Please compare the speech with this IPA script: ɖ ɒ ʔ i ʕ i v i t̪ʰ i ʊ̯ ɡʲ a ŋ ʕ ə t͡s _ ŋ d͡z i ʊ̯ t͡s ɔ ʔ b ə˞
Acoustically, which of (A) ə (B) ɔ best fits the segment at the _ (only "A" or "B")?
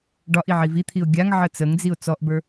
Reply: A